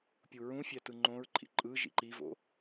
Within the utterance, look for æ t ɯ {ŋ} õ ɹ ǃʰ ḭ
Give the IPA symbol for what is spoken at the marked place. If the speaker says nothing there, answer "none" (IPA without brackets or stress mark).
ŋ͡ǃ